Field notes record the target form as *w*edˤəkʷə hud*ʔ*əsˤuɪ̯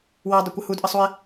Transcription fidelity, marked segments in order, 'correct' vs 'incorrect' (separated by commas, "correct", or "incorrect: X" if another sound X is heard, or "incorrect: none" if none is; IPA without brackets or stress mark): correct, correct